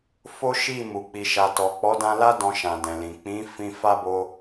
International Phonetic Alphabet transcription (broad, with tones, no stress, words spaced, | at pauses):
fo˦ʃi˦˨mu˨ k͡pi˨ʃa˨tɔ˨ k͡pɔ˨˦dã˧la˦ dɔ̃˧ʃã˨ dɛ̃˨lĩ˨ k͡pĩ˨˦ fĩ˧fa˦bo˧